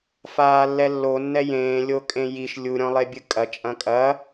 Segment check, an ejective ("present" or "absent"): present